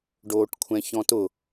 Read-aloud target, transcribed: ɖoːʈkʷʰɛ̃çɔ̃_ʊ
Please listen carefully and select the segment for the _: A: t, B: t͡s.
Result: A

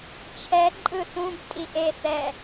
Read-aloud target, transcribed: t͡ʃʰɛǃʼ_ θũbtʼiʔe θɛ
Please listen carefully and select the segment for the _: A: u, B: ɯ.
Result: B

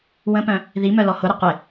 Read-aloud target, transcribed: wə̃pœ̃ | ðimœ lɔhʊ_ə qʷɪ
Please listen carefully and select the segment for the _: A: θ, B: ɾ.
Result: B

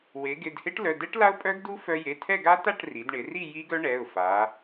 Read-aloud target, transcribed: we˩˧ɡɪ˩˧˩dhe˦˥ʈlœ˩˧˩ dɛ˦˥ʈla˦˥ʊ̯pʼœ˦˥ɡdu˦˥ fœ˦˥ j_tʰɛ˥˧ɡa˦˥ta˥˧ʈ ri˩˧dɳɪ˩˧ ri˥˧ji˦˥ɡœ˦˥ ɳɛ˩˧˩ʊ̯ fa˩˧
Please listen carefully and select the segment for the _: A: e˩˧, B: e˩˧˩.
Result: B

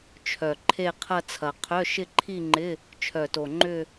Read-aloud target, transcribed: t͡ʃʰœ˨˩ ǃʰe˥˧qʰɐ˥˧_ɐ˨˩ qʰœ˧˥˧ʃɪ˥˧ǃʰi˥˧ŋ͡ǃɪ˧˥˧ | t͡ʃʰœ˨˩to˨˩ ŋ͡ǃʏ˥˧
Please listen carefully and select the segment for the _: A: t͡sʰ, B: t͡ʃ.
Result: A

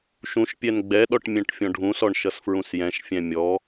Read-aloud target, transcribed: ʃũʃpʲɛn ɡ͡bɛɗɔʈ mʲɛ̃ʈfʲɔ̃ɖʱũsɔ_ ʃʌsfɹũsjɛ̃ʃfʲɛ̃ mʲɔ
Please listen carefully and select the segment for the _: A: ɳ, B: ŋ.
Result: A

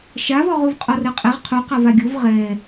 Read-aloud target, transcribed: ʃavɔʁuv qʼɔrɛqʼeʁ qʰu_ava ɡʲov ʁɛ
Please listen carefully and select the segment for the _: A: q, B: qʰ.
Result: A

